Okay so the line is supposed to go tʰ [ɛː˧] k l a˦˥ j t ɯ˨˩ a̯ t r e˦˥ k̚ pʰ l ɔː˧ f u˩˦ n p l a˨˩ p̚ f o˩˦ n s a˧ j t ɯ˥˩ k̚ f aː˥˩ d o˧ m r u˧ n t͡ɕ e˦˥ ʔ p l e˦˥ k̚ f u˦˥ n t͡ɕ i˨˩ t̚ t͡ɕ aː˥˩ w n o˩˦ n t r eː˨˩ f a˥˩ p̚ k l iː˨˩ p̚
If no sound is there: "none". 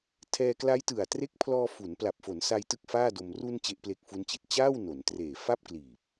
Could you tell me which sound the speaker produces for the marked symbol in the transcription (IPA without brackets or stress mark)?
ɛː˧